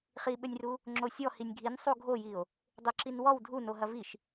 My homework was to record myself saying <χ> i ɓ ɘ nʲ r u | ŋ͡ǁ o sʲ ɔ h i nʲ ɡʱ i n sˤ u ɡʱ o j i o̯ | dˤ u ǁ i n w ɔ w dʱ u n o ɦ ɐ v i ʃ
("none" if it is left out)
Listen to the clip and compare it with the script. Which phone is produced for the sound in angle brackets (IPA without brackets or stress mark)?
χ